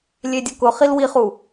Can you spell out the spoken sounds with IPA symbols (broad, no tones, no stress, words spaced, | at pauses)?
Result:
lʲedʲʊkʊχil wiχu